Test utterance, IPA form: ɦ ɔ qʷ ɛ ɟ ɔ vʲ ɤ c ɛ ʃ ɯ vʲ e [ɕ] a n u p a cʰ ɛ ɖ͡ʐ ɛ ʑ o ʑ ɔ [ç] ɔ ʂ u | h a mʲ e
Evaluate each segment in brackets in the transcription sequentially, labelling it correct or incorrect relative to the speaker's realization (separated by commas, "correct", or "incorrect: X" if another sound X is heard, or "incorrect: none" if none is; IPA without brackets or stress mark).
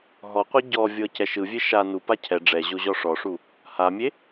incorrect: ʃ, incorrect: ʂ